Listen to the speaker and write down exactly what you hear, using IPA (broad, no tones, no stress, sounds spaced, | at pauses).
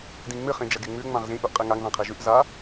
d ĩ ŋ͡m ɨ χ ĩ d͡ʒ ɐ ɡ e ŋ͡m ʉ ŋ͡m ã ʁ z ĩ ʔ u ʔ qʼ i ŋ a ŋ ð ã qʰ i ʒ ʉ ʔ z a